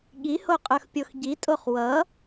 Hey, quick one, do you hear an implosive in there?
yes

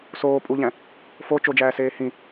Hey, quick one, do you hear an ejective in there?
yes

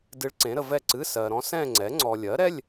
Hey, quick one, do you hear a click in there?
yes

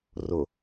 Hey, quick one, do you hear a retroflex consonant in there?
no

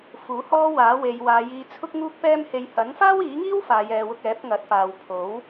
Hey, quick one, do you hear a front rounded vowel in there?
no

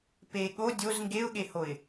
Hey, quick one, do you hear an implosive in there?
yes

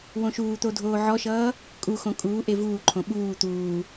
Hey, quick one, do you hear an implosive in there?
yes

